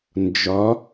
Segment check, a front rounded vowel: absent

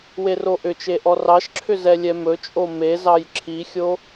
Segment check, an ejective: present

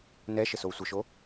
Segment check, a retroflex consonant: absent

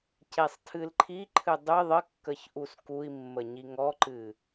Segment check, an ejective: absent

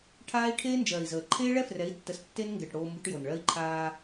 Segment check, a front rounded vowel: absent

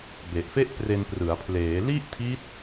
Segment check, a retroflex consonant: absent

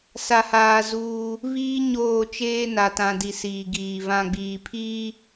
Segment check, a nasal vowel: present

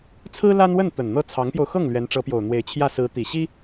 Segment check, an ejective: absent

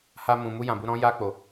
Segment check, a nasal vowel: present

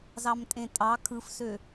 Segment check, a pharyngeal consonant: absent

